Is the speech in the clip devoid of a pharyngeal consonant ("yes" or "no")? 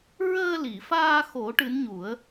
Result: yes